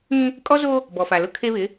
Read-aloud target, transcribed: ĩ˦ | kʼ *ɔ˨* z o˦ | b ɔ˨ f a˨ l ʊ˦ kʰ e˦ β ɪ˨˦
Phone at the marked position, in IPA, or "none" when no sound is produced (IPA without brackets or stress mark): ɔ˦